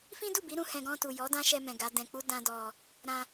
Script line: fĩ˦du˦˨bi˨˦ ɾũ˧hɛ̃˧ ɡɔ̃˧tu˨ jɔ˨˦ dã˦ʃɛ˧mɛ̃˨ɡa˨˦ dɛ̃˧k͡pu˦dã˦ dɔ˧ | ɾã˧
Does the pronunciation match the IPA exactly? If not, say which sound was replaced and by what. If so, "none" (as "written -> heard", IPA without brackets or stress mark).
none